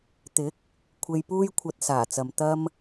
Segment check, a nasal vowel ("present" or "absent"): absent